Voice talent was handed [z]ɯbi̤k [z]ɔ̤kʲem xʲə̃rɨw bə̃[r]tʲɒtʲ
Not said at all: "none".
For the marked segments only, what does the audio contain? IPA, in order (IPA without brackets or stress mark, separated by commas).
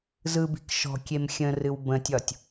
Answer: z, ʃ, none